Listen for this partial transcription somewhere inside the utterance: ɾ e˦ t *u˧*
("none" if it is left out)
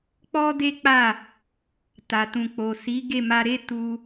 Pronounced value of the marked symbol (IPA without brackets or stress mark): u˧